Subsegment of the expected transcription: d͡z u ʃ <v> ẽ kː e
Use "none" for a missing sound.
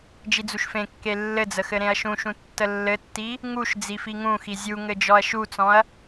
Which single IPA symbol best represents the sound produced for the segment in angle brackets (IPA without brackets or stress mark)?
f